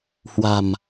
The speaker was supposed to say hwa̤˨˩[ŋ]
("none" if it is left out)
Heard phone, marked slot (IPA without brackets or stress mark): m